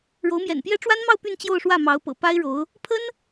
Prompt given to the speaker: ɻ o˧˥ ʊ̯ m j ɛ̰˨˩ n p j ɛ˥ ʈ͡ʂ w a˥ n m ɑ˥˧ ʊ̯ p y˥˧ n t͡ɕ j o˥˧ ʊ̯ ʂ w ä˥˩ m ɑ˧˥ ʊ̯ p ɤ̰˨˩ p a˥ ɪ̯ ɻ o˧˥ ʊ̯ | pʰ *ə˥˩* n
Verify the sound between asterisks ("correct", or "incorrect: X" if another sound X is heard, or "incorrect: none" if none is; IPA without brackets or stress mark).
incorrect: ə˥